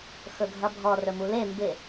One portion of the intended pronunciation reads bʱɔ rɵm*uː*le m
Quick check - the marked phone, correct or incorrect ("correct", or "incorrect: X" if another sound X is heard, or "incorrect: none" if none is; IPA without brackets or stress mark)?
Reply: incorrect: u